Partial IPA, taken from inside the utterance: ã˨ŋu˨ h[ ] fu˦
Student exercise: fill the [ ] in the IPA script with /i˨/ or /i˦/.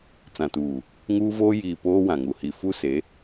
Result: i˨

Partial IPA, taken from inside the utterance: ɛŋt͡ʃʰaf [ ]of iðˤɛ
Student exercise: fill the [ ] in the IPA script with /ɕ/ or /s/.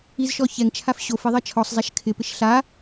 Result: ɕ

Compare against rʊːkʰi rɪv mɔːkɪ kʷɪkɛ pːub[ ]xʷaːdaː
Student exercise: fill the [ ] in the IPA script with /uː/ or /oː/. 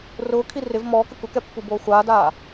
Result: oː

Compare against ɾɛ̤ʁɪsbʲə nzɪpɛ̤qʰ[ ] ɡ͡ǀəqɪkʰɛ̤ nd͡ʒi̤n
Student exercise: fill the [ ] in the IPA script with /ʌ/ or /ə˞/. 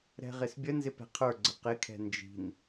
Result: ə˞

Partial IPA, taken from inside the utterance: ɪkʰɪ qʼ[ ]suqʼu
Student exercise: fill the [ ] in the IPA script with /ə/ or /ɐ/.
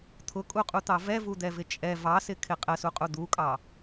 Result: ə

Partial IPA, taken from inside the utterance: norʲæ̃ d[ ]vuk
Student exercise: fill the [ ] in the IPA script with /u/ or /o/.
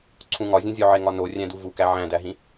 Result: u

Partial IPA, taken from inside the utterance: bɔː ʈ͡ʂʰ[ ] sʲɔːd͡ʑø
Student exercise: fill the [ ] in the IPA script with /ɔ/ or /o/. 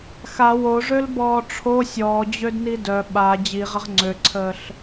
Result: o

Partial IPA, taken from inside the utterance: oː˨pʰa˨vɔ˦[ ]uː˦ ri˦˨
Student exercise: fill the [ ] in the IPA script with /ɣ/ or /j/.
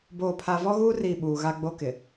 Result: ɣ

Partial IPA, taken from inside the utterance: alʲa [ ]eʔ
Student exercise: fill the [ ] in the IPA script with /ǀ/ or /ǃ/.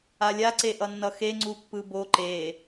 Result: ǀ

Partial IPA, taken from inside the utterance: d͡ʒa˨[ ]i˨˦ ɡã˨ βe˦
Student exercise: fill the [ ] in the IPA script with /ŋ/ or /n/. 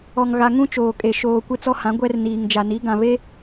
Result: n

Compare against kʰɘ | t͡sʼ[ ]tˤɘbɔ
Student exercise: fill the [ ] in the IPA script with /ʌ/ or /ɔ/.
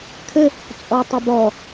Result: ɔ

